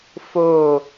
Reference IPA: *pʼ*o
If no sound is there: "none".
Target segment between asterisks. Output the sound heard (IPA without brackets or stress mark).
f